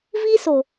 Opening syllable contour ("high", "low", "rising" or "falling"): high